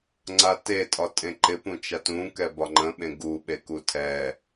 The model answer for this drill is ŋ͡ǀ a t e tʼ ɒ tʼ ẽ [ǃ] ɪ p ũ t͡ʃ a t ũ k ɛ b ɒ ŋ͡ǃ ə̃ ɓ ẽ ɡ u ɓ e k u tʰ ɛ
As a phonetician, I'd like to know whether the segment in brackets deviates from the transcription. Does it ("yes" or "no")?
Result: no